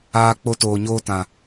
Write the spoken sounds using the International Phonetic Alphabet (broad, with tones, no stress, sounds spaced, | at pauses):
aː˧ k͡p o˧ t oː˨ ɲ oː˧ t ã˨